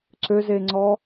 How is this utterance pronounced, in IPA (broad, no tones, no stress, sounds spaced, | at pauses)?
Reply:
ǀ ø z e ŋ͡ǀ ɔ